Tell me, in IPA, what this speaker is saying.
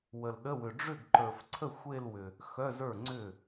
wə˨lɗə˧˥˧wʏ˨ ɖ͡ʐʏ˥˩ɡǃə˞˨fǀʰə˥˩ xʷe˥˧lwʏ˨ | xœ˧˥˧zə˞˥˩ŋ͡ǀʏ˥˩

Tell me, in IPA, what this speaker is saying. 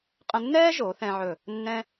qʼə̃˧nːɛː˥ʒo˩˧ θɛ̃˧ʕɵ˧˩ | nːɛ̃˥

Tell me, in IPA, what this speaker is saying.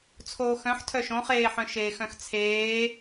t͡sʰoːxœ̃ħ tʰœʃõχeːħœ̃ ʃeːxœ̃xt͡sʰeː

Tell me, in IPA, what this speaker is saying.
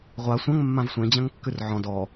ʁʷa sʷɐ̃ŋ mːãvsʷẽ d͡ʑɐ̃ŋkːʉrʕɔ̃ dɔ

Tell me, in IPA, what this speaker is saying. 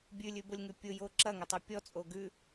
bʲʉlʲʉbʊlʲŋʉ pʲʊjo ǁɐŋʊtˤʉ pʲɔt͡sʼo ɡʉ

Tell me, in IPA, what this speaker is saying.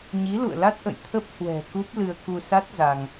ɲi˨˦lṵ˧˨ə̯la˦˥t̚ʔə̰˧˨j t̪ʰə˦˥p̚hwɛ̤˨˩ ku˦˥p̚lɨ˧ə̯ ku˧sa˦˥t̚ za˧ŋ

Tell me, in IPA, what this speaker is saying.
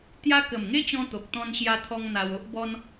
t̪ja˦ kə˨˩mŋe˦t͡ɕɔ̃˧ t̪o˨k̚ t̪ɔ̃˧nɕja˧t̪ʰɔ˧ŋ n̪a˧wo˦ʔbɔ˦n

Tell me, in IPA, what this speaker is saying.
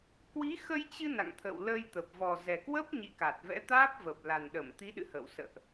kwi˨˦xə˧jt͡ɕɨ˧ na̰˧˨ŋt̪ʰə̰˧˨w lə˧jt̪ə˨˩p̚ vɔ˨˩zɛ˨˩ kwə˦˥p̚ɲḭ˧˨ka˨˩t̚ vɛ̰˧˥t̪aː˦˥p̚və˨˩p̚ la˨˩nɗə˧˩mt̪i˨˦ɗɨ̰˧˨ hə̰˧˨w sə̰ː˧˨ʔ

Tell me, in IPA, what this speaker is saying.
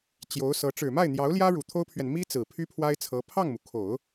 t͡ɕjo˧˥ʊ̯sɤ˧˥ ʈ͡ʂɻ̩˨˩ma˥˩ɪ̯n̪jɑ˧˥ʊ̯ljä˥ ɻu˨˩t̪ʰo˥ʊ̯pʰɥɛ˨n mi˥ t͡sɹ̩˨˩pʰy˥pʰwa˥ɪ̯t͡sʰɤ˧˥ pʰɑ˥˩ŋmu˩kʰo˨˩˦ʊ̯

